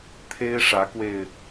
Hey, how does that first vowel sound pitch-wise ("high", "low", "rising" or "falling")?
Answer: high